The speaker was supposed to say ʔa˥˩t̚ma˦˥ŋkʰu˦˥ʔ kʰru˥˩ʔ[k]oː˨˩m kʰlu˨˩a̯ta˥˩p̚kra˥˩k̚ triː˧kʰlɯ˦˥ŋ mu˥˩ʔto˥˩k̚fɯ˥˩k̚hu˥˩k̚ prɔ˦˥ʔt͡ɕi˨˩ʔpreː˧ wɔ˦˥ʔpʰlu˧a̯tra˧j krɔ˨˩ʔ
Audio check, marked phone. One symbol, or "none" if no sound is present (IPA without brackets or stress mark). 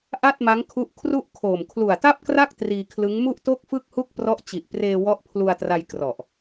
kʰ